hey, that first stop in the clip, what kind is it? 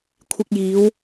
aspirated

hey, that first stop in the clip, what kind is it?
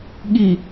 implosive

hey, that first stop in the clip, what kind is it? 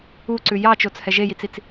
click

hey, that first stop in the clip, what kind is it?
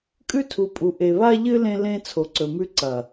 ejective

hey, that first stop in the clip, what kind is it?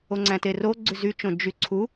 click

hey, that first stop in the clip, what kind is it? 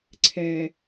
click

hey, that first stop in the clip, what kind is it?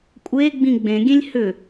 ejective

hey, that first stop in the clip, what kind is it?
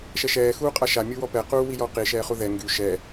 ejective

